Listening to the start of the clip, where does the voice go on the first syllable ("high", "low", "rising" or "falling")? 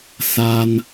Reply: high